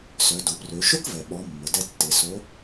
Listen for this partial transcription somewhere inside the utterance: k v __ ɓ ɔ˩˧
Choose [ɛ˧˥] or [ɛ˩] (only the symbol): ɛ˩